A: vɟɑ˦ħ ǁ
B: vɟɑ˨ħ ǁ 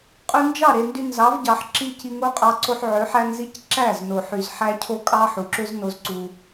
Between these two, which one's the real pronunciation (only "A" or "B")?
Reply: B